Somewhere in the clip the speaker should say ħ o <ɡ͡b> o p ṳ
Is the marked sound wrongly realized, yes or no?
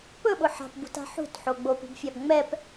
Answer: no